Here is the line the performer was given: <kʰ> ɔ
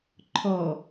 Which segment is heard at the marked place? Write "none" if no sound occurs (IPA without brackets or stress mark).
ǃʰ